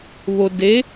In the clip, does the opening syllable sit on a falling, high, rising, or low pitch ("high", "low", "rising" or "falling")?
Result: low